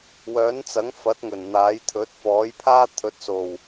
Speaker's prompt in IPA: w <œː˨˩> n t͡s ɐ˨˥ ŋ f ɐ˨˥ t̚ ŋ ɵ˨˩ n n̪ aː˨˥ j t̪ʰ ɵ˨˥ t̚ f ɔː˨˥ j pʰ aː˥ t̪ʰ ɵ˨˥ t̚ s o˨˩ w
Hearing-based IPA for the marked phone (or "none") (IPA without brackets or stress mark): œː˨˥